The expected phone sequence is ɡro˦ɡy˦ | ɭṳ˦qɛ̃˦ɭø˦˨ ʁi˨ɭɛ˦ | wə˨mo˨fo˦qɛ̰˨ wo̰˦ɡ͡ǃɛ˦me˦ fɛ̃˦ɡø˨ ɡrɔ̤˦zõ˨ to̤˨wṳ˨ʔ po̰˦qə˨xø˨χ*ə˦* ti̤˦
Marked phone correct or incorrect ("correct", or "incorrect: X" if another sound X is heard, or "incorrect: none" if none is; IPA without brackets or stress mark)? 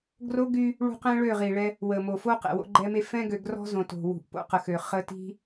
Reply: correct